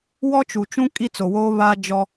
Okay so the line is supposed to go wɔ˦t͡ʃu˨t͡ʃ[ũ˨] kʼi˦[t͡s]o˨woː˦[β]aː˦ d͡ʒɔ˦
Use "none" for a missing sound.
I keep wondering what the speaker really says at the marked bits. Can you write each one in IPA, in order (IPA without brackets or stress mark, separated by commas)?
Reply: ũ˦, t͡s, β